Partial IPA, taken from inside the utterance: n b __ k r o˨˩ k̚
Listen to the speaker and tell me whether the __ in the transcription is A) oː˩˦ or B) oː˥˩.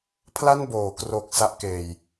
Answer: A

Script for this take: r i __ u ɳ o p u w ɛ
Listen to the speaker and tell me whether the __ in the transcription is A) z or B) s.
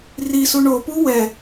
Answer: B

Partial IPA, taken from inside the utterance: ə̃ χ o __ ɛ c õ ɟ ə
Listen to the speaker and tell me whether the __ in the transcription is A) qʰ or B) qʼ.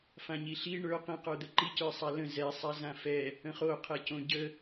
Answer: A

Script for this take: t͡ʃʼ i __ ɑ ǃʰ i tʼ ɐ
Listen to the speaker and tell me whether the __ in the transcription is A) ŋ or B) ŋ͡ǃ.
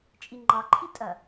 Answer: B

